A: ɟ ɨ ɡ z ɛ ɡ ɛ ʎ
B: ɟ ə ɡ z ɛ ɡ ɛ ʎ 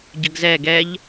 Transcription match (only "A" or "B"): B